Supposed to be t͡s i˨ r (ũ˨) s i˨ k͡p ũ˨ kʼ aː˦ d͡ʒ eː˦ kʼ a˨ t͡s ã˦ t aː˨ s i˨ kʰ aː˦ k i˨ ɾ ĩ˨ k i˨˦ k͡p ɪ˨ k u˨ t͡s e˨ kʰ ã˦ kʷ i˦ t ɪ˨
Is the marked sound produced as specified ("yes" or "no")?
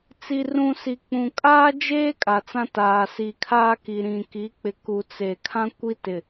yes